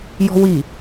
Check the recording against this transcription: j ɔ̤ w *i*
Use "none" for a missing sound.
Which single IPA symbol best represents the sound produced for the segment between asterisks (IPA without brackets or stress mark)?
i